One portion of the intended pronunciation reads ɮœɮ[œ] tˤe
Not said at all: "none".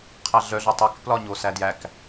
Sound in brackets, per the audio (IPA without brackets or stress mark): œ